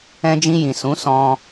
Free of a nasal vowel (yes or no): no